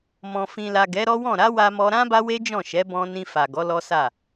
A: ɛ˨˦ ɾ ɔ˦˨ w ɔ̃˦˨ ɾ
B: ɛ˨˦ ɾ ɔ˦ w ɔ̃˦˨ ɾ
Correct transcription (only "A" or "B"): B